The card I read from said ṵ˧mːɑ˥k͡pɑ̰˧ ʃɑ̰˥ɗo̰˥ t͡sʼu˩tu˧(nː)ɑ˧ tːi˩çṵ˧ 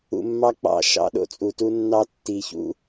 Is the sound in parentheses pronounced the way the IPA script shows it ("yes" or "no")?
yes